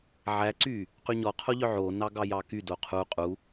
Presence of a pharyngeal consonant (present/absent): present